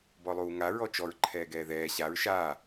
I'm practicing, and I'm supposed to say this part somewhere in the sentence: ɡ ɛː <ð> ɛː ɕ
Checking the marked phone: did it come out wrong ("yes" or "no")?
no